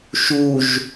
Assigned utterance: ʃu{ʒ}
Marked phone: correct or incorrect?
correct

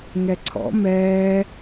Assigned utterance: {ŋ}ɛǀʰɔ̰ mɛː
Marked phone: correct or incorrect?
correct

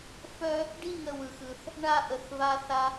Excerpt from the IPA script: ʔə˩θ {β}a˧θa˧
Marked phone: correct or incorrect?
correct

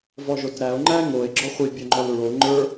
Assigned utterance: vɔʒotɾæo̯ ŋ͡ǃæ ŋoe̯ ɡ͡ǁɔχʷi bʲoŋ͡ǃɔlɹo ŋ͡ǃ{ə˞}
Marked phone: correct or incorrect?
correct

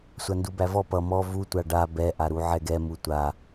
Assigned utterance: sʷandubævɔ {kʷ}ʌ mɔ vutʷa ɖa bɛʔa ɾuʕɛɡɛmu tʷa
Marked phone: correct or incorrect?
incorrect: p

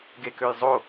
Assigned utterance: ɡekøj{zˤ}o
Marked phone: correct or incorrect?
correct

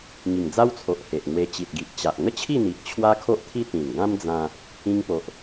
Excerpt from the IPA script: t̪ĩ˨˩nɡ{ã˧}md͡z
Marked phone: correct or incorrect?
incorrect: ã˦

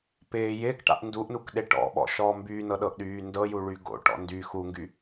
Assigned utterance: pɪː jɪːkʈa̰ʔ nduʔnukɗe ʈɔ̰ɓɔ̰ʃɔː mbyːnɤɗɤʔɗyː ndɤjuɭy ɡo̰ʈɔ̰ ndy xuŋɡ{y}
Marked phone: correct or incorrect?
correct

